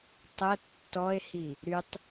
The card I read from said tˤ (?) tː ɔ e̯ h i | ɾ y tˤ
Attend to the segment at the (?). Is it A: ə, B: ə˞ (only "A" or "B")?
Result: A